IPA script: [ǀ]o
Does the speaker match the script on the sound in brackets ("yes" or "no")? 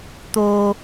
no